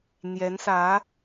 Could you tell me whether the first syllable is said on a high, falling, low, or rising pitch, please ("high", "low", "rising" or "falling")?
rising